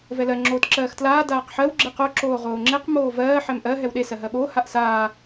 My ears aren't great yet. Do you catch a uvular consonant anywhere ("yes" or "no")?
yes